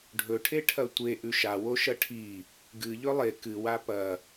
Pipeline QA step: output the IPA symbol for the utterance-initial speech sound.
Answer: ɖʱ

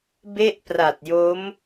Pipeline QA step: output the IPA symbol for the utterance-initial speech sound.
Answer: b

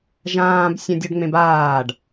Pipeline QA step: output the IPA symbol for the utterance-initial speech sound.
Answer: ʒ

